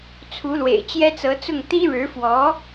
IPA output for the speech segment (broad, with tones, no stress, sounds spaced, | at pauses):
t͡sʰ u˧˥ l w ḛ˨˩ ɪ̯ t͡ɕ j ɛ˥ t͡s ɤ˧˥ t͡s ʊ˥˩ ŋ t̪ i˥ ɻ ɻ̩˧˥ f w ɔ˧˥